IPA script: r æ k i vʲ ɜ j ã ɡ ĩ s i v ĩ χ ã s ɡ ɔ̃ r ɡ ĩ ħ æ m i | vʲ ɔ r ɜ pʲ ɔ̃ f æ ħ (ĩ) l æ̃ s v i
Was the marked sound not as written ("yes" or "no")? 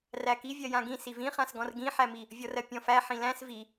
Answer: no